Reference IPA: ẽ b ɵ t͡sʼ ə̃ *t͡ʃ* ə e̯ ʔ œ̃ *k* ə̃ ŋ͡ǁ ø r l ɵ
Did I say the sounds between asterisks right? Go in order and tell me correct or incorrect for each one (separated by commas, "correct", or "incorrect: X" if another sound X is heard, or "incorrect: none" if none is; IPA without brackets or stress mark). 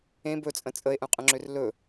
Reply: incorrect: t͡sʼ, incorrect: qʼ